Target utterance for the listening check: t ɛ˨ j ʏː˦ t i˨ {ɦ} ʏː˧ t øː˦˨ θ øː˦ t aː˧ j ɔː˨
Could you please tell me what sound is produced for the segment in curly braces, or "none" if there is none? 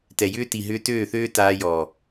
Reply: ɦ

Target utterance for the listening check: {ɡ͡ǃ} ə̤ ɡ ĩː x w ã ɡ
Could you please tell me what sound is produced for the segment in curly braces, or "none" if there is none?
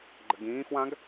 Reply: ɡ͡ǃ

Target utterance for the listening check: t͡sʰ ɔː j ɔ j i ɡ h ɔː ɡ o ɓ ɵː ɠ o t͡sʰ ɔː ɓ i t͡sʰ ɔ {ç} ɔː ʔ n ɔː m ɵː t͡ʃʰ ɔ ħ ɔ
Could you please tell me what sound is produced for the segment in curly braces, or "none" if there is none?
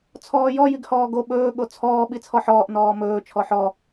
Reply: ħ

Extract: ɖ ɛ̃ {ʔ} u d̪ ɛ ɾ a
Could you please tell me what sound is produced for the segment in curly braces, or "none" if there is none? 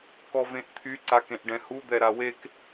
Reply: h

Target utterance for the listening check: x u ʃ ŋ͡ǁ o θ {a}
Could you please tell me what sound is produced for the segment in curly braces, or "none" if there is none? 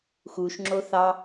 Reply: ɑ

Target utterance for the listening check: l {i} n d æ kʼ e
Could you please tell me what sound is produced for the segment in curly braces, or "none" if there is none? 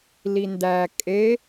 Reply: i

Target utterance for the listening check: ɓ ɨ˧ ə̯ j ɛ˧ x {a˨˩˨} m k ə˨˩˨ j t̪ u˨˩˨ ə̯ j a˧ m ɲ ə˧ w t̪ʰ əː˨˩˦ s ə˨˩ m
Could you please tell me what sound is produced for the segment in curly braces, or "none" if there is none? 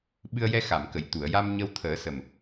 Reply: a˨˩˨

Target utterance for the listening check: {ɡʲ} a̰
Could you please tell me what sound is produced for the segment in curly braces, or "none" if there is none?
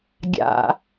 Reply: ɡʲ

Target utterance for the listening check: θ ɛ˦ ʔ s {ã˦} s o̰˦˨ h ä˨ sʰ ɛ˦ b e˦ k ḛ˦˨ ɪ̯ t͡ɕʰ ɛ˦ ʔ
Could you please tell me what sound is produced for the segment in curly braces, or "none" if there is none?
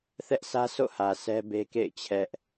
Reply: ä˦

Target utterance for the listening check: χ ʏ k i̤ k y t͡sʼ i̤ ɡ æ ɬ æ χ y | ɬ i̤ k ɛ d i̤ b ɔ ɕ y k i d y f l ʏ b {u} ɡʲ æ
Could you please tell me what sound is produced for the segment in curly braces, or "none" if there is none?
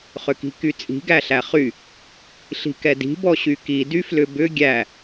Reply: ʏ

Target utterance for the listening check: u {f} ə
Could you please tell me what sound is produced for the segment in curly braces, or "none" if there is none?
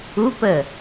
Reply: p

